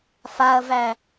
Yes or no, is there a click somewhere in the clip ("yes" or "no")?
no